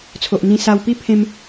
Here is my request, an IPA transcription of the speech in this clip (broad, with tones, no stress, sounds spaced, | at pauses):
t͡sʰ o˨ ʔ n̪ ĩ˧ s a˧ w p i˦ pʰ ẽ˦ m